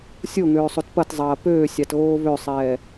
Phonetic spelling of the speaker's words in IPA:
sʲ o ŋ øː sˤ o t p ɐ t zˤ ɐː p øː sʲ ɑ t ɣ oː β ø sˤ ɛː

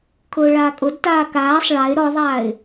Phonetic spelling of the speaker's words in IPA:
kʰ ʊː ɭ aː kʼ ʊ d t aː k aː sˤ ɭ a ɪ̯ ɾ ɔ ðˤ aː ɪ̯

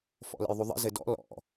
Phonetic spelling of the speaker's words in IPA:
f ɔ̰ l ə̰ j ðˤ u ðˤ ə̰ z ɘ d ɔ̰ l ɔ̰

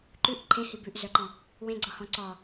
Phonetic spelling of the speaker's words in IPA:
ǃ ʉ ʔ ǃʰ ẽ h i b ʉ ʔ z œ ǃ ɔ̃ | w ẽ ɡ͡ǀ ɔ h ɔ̃ ǀ ɔ

